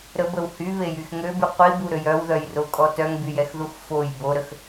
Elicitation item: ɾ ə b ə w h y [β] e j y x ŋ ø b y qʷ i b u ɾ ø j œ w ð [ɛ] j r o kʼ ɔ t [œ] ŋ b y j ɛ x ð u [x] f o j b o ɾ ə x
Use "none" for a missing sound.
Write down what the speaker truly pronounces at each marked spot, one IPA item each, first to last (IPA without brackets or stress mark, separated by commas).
β, œ, œ, x